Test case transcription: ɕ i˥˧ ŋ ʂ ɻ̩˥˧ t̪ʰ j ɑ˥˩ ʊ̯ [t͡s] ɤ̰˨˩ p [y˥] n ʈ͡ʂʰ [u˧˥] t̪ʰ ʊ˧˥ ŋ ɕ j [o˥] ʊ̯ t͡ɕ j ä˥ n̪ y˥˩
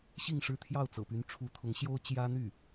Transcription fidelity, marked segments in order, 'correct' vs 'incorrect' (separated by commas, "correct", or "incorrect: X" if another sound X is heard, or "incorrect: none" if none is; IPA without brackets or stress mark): correct, incorrect: y˧˥, correct, correct